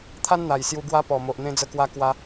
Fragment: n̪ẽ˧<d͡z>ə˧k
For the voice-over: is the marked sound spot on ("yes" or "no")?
yes